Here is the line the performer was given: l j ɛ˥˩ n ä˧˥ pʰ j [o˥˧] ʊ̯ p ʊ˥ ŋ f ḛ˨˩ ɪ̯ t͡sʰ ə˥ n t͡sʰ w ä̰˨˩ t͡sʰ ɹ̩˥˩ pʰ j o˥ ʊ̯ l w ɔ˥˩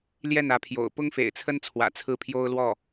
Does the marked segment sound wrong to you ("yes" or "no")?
yes